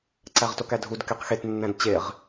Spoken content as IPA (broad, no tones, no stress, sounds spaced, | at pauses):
ǀ æ ʁ t o k æ dʱ u d k e q x e t nː æ̃ d t͡ɕ e ʁ